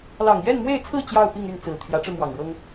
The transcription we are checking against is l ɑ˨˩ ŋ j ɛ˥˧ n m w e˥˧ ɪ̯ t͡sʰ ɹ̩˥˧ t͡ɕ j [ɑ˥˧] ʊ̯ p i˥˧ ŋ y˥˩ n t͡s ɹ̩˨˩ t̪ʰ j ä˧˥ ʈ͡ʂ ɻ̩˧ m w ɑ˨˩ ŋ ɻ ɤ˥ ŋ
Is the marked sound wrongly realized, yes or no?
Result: no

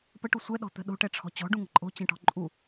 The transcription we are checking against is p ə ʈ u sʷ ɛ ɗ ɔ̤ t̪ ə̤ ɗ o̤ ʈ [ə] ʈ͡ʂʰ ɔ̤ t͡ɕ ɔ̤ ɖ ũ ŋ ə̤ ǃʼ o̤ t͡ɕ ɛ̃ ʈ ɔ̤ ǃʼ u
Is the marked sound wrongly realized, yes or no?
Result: yes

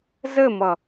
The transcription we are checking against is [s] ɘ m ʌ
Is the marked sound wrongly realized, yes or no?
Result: yes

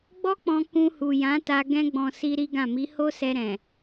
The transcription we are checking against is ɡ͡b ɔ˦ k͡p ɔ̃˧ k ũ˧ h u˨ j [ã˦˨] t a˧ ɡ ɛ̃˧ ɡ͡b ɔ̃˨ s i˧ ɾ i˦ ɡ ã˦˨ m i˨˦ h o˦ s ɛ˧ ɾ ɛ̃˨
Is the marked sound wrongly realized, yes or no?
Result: yes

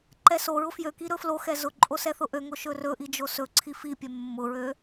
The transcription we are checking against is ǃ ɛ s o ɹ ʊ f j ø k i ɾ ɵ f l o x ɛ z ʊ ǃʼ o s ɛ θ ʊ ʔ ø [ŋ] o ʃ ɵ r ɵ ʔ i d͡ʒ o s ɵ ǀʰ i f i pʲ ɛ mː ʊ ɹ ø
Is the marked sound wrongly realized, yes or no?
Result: no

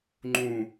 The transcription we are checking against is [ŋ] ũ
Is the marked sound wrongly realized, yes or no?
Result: yes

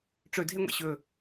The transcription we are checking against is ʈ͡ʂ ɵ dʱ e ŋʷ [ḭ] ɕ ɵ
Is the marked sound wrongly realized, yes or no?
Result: no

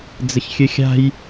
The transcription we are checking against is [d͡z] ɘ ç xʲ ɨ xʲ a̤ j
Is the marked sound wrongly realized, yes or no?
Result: no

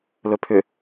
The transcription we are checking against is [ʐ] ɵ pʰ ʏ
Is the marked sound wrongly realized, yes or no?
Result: yes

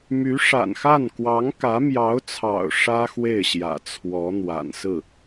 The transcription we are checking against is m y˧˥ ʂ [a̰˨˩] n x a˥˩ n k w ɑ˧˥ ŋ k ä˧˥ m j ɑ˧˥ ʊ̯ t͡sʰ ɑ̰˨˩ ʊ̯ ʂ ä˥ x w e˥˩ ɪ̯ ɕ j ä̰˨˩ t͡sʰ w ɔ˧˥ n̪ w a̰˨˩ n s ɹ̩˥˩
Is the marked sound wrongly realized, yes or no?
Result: no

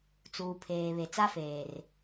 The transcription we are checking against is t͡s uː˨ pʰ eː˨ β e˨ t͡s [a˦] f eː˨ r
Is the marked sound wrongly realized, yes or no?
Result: no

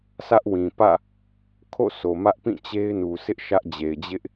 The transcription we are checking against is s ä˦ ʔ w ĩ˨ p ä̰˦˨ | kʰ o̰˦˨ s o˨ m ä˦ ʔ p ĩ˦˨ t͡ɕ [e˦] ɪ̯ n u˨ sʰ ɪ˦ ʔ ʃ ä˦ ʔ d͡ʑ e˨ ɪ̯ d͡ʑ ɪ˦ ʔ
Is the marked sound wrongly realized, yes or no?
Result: no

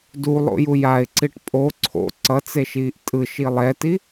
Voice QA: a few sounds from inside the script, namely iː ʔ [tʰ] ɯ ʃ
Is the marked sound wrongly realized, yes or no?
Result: yes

